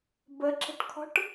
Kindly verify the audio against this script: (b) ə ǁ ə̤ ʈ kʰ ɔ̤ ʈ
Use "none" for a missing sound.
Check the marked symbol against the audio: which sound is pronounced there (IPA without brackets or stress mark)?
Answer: b